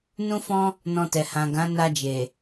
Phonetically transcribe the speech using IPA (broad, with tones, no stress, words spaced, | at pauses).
nũ˦fɔ̃˦ | nɔ̃˧tɛ˨ hã˨ ɡã˨˦na˧d͡ʒe˨